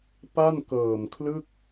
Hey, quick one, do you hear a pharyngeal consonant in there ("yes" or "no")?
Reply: no